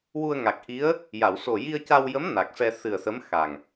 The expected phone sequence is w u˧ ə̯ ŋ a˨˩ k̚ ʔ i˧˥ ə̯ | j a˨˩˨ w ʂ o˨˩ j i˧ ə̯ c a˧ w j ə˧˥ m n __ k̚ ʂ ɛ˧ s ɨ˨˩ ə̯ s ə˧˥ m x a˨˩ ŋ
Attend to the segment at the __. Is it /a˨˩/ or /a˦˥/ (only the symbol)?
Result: a˨˩